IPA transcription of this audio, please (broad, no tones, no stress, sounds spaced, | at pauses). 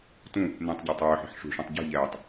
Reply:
t ũ | n ẽ tˤ ɟ ɛ tˤ œː ħ e̤ ħ ʂ ṳ ʂ õ tˤ ɟ e̤ ʎ ɛː tˤ